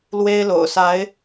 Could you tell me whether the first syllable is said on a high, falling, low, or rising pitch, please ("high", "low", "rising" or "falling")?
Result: high